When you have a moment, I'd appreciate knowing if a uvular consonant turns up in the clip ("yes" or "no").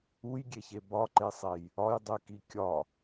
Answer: no